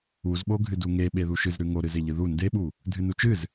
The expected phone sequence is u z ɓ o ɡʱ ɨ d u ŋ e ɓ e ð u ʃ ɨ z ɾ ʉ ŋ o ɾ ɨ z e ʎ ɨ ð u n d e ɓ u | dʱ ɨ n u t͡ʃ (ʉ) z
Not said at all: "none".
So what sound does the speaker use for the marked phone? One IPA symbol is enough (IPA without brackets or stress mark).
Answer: ɨ